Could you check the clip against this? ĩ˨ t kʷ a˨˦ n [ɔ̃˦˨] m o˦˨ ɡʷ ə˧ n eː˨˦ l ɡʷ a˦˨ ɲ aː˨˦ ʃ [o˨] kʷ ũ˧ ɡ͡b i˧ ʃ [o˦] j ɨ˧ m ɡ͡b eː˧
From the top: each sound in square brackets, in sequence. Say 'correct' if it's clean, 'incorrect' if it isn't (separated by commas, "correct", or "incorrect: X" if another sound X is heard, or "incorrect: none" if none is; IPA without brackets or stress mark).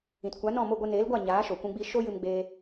correct, correct, correct